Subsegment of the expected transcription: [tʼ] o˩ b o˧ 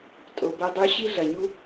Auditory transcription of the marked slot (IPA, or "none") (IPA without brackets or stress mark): tʼ